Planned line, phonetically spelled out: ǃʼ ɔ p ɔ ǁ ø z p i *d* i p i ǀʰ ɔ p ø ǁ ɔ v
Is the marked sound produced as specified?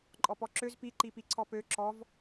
no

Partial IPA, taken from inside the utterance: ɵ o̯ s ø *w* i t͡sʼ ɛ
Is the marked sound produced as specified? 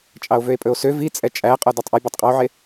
no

